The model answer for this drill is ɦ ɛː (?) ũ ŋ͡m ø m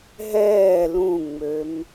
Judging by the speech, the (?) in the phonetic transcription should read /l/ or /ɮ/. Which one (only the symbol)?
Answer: l